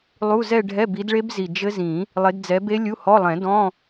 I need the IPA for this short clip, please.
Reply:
lˠ u˧˥˧ z ɛ˥˧ ɖʱ ɛ˧˥˧ b i˨˦ d ɭ e˦˥ b z i˨˩ d͡ʒ ɘ˦˥ z ĩ˨˩˦ | lˠ e˨˦ d d͡z ɛ˨˦ b e˦˥ lʲ u˧˥˧ h ɔ˧˥˧ lˠ ɛ̃˨˩˦ d ɔ̃˧˥˧

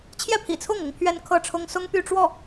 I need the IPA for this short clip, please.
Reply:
t͡ɕʰ j ɛ˥˩ pʰ ḭ˨˩ t͡sʰ ʊ˥˩ ŋ ʊ˥ ŋ pʰ ɥ ɛ˥ n kʰ ɤ˥˩ ʈ͡ʂʰ ʊ˥ ŋ s ʊ˥ ŋ p y˥˧ ʈ͡ʂ w ɔ˥˩

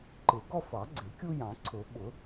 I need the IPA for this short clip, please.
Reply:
ǃ ɪ˨˩˦ ɡ ɔ˦ f ɑ˨˩˦ ɡ͡ǀ ɪ˨˩˦ kʲ u˦ j ɑ̃˨˩˦ ǀʰ ʊ˨˩˦ ɓ ʊ˨˩˦

